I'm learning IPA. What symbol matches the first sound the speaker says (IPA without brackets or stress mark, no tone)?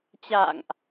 t͡ɕ